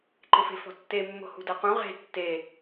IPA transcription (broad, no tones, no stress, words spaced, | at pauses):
ǃɪfe̤fɔ̤tːe mːo̤hṳdaqũ ʁe̤ tːe